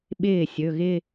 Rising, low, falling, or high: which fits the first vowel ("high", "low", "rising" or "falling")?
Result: falling